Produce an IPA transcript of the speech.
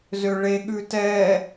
zøɭe ɠʉtɛ

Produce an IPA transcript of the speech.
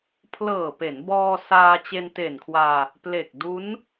pʰlɤː˨˩pe˩˦nbɔː˧ saː˧ t͡ɕe˧nte˨˩nkʰwaː˧ | ple˨˩k̚du˦˥n

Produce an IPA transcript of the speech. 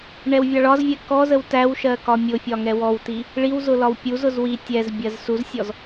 ɳɛwvʲɑɭɒzvʲɛ kɔzəw tæwʃɜ kɒmʲʊfʲɒ ŋɛwɔwti | ɭiwzʊ lɒwpʲuzʊz wi tʲɛzbʲɜz suzsʲɔz

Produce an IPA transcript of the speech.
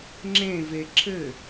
ŋ͡ǁẽve ǁɘ

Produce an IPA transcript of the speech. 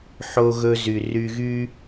ħo˦ɣɵ˦ zy˨ry˧ɣy˦

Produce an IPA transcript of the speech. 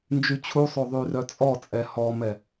nd͡ʒyt͡ɕʰusˤo ðˤyrœt͡sʼɔt͡sʼɛ hɔmɛ

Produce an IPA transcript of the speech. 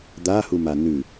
d̪ahuma nʉ

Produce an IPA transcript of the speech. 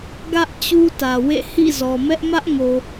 ɡä˦ʔ t͡ɕu˦tä˨wḛ˦˨ hḭ˦˨zɔ˨mɛ˦ʔ mä˦ʔŋo˨

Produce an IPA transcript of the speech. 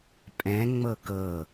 pʼɛ̃ ŋ͡mɤkɤ

